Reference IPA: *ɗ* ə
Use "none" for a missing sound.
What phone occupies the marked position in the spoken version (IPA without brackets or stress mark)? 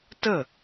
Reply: t